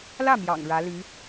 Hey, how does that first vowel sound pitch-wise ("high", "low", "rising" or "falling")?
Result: falling